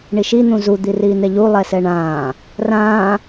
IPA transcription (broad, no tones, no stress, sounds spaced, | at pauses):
ɳ i ʃ i n̪ ũ z u d̪ i r iː n̪ ɛ ʎ u lˠ ɛ s ɛ ɳ ãː | r ãː